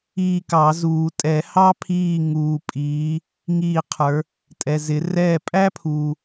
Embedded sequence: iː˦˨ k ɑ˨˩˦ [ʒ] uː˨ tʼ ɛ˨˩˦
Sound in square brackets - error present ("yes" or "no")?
yes